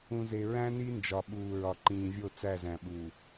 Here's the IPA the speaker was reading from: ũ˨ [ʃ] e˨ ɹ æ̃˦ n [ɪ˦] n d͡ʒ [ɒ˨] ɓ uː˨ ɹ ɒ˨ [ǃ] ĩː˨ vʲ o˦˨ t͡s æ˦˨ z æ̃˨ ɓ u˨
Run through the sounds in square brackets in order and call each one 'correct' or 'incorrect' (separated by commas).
incorrect, incorrect, correct, correct